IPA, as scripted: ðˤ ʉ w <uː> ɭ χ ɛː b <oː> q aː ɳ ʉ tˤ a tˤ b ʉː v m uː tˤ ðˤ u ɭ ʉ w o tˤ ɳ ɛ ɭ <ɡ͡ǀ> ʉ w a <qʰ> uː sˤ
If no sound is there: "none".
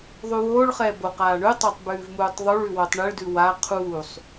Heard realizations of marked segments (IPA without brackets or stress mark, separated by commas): oː, o, d, qʰ